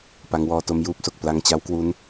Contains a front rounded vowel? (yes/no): no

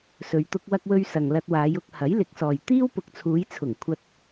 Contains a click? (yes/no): no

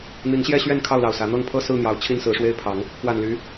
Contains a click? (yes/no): no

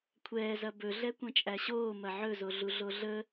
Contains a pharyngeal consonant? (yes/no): yes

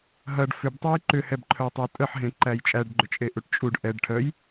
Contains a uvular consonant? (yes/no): no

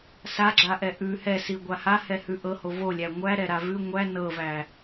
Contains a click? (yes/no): yes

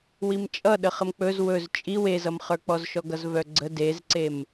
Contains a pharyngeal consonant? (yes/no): no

